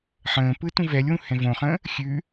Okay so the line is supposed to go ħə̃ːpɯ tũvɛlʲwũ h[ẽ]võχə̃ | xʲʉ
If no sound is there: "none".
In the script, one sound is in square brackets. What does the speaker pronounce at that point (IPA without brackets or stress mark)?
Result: ɛ̃